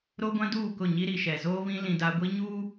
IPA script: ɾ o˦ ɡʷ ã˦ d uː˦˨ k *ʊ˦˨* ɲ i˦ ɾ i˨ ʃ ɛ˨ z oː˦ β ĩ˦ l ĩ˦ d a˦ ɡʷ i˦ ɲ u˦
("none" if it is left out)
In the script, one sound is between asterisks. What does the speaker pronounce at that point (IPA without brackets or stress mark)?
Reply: ʊ˦˨